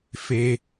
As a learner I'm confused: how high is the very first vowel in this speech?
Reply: mid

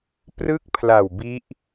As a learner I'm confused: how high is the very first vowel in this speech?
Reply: high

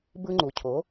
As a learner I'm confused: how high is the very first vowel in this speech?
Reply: high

